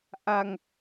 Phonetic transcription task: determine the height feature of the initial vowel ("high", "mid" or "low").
low